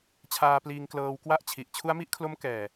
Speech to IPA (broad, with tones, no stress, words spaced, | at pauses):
t͡ɕʰaː˧pliː˧ŋ klɤː˧wkwa˥˩ʔt͡ɕʰi˨˩ʔ t͡ɕʰu˦˥a̯mi˦˥ʔkʰlo˦˥mkɛː˨˩